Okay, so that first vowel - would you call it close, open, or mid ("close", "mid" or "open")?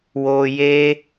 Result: mid